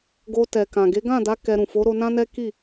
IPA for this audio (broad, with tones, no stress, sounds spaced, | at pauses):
ɡ o˧ t ɛ˨ k ã˨ ɡ e˨˦ ɡ ã˦˨ d a˨˦ k ɛ˧ ɾ ũ˨ f o˨˦ ɾ o˧ n ã˦ n ɛ˦ k i˦˨